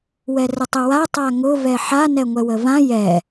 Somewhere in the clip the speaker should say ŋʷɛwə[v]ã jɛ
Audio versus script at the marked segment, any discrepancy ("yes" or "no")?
no